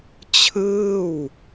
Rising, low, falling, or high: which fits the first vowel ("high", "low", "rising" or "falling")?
falling